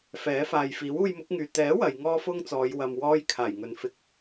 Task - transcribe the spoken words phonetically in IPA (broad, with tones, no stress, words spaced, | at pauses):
fɛː˨˥faː˨j fiː˨˥wuː˧jmʊ˨˥k̚ŋyː˨ t̪ɛː˨˥ wɐ˨˧j ŋɔː˥fʊ˥ŋt͡sɔː˨˧j wɐ˧mwɔː˥j kʰaː˨˩jŋɵ˨nfɪ˧k̚